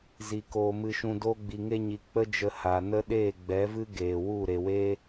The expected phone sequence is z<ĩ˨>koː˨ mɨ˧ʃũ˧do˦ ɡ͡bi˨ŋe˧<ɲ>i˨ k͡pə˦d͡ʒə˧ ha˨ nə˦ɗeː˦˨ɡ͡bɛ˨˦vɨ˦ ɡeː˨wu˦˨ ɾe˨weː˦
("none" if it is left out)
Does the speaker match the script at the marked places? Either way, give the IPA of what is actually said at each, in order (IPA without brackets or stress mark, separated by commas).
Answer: i˨, ɲ